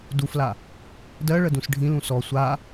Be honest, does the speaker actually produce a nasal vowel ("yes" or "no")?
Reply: yes